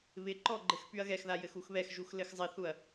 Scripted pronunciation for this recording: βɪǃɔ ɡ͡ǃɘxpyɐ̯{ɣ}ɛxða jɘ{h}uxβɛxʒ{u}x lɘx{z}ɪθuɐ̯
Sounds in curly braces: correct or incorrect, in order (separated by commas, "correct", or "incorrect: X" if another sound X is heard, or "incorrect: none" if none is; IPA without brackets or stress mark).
correct, incorrect: x, correct, incorrect: zˤ